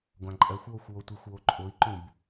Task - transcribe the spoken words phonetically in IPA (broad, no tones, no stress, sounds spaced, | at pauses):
ɡʷ ã ǃʼ ɜ xʷ w o xʷ w o tʷ i xʷ w o ǃʼ o i̯ ǃ ũ b